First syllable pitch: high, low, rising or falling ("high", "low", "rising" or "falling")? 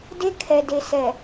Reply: high